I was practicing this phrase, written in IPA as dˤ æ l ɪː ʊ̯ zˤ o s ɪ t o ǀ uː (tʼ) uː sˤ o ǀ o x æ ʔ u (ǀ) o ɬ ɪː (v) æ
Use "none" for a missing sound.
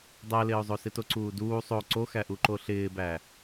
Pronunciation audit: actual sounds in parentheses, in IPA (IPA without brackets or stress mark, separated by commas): d, ǃ, b